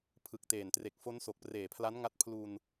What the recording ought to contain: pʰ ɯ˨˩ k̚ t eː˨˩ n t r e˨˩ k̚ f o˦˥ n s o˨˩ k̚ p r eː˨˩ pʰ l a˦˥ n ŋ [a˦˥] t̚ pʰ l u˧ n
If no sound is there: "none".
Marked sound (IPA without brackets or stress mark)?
a˦˥